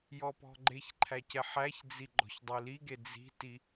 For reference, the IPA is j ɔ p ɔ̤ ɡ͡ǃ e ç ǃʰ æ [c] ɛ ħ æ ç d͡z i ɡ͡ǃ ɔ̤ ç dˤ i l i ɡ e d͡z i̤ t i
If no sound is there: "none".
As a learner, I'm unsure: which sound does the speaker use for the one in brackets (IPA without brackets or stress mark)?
c